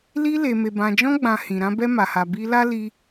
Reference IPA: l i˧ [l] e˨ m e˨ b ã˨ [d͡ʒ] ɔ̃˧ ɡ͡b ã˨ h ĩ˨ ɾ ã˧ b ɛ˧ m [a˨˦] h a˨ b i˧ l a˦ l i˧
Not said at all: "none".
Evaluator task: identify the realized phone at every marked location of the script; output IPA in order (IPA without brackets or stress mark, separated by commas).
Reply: l, d͡ʒ, a˨